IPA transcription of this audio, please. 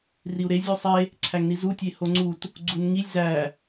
r i u̯ ɾ e zʲ u sˤ e | ǀʰ æ ŋ n i z u tʲ e h o ŋ͡ǀ u t | ɡ͡ǀ u n ŋ i lʲ z æ

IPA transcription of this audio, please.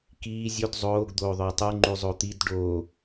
k iː zʲ o d zˤ oː ɡ d̪ oː ðˤ œ tˤ y ŋ͡ǃ y zˤ o t̪ i d ɖ o

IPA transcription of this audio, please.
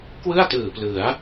k w ɯ˥˩ a̯ t ɯː˨˩ p l ɯ˩˦ a̯

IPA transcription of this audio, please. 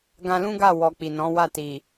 ɡ ã˧ l ũ˦ ɡ a˦˨ w ɔ˨ k͡p i˨ n ɔ̃˨˦ w a˦˨ t i˨

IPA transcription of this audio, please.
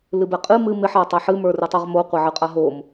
l ɨ b ɛ qʼ ɨ m ɨ m ɪ ħ a tˤ ɛ ħ ɨ m ə˞ r ɨ tˤ ɛ ʁ m o qʷ ɛ ʕ ɨ qʼ a ɦ o m

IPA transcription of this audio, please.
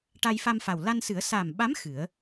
ʈ a˧ j f a˧ m f a˨˩ w l a˧ n s ɨ˨˩˦ ə̯ s a˨˩ m ɓ a˧˥ m x ɨ˨˩˦ ə̯

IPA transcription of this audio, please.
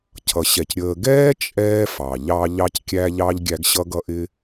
cʰ ʌ˩ ɕ ɛ˩ c ɾʲ əː˨ ɡ ɛː˥ t͡ʃʼ ɛː˦ f ɑ˩ ʎ ɑ˦ ʎ ɑ˦ c kʲ æ˦ ʎ ɑ˥ ʎ ɡʲ æ˦ ɡ ɕ ʌ˥ ɡ ʌ˥ ʔ ɪ˥

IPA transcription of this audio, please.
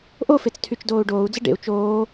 ʔ o f e t͡s tʰ y t͡ʃ d oː u̯ ɖ oː u̯ d͡z ə ɖ ḛ u̯ t͡ʃ oː

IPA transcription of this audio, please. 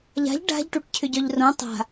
ʎ a̤ ʎ ɖ a̤ ʎ ʈ u ʈ cʰ ʏ ɟ œ ʎ r õ tˤ a̤

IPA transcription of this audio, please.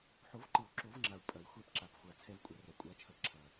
ħ o˨˩˦ v ǃ ɨ˨˩˦ u̯ ǁ o˨˩˦ v ŋ͡ǁ a˨˩ u̯ pʼ ɐ˨˩˦ i̯ xʷ ɛ˧ p ǁ a˨˩ p xʷ a˨˩ t͡sʰ ɛ˧ v kʷʼ ɐ˨˩˦ r ɐ˨˩ kʷʼ a˧ t͡ʃʰ ɐ˧ ǁʰ ɐ˨˩

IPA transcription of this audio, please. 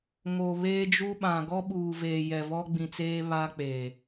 ŋ o˨ β eː˦ d͡ʒ u˦ ɓ ã˨ ɡ ɔ˦ ɓ uː˨ v eː˨ j ɛ˨ v ɔ˦ ɡ͡b ĩ˨ t͡s eː˦ β a˦ k͡p eː˨

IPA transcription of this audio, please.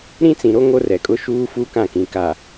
ɾ ĩ˦ t͡s ĩ˨ ɾ o˦ ŋ o˦ r ɛ˨ kʼ ʊ˦ ʃ uː˦ f u˦ k ã˦˨ k ĩ˨ k a˨

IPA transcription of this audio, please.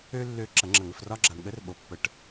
ø˥ lː ø˧˥ ǁ ɐ˨˩˦ ŋ͡ǁ ɐ˨˩˦ ŋ ə˨ f r ɒ˥ ɡ͡ǁ a˨ ɳ ɠ ə˧˥ r ɓ o˨ pː ə˨˩˦ ʈ

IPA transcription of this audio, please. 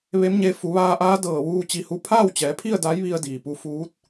ʋ e˧˥ m ɲ e˧ f u˩˧ ʋ aː˧ ʔ aː˧˥ d ɤː˧˩ ʋ uː˧ t͡ɕ i˧ h u˥˨ pʰ aː˥˨ w t͡ɕ ɛː˩˧ pʰ i˥˨ ə̯ d a˧˥ j ʋ i˧ ə̯ d iː˩ p u˧ f uː˧˥ t̚

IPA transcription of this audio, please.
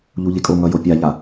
ʎ u ʎ e kʼ o ŋ ʌ j o pʲ a ʎ a

